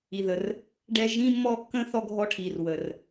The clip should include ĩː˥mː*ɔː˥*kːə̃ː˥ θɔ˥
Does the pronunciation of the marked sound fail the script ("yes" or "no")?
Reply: no